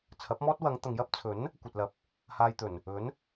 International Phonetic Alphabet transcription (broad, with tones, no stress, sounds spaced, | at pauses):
t͡sʰ ɐ˨˥ p̚ m ɔː˥ t̚ w ɐ˨˧ ŋ t̪ ɐ˨ ŋ j ɐ˥ p̚ t͡sʰ ɵ˨˥ n | kʷ ɐ˨ t̚ l ɐ˨ p̚ | h aː˧ j t̪ ɵ˨˩ n | ɵ˨˥ n